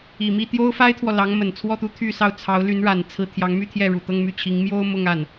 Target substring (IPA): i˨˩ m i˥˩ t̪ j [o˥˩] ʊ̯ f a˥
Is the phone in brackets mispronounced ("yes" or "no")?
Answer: yes